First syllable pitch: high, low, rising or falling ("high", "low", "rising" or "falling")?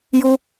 high